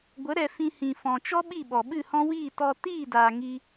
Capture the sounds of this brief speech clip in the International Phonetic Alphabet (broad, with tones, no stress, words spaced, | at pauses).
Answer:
ɡʷə˨˦ɾɛ˨ fĩ˧hĩ˨fɔ̃˨t͡ʃɔ˦ ɓi˦˨ɓɔ˨ɓɨ˦˨hɔ̃˦ wiː˦˨ tɔ˧ tiː˦˨daː˨ ŋi˧